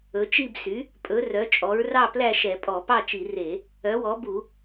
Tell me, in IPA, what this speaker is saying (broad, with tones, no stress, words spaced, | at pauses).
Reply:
ɵ˩˥t͡ʃi˥˨bsy˩˥ | pʼɵ˩˥ rœ˩˥t͡ʃʼɔ˩˥ɹ rɑ˥˨plæ˥˨ʃɛ˧˩˧ pʼɔ˧˩˧pɑ˥˨t͡ʃi˧˩˧ re˧˩˧ | œ˩˥wɔ˩˥ bu˧˩˧